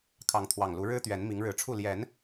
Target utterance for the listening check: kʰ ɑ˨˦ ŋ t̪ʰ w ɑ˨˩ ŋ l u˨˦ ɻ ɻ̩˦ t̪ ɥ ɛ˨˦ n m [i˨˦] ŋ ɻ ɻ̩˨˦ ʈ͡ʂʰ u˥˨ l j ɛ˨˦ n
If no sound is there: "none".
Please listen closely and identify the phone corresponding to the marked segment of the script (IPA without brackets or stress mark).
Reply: i˨˦